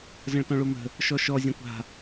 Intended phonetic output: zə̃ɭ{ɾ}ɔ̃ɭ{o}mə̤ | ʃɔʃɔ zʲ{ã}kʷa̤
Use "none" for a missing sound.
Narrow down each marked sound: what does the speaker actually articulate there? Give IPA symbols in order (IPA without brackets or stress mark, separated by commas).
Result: t, o, ã